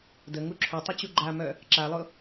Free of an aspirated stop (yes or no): no